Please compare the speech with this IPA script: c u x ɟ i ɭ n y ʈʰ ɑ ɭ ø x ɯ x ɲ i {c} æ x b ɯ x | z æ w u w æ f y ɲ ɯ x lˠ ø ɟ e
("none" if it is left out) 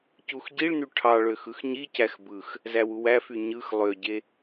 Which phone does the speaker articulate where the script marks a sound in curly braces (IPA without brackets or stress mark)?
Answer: c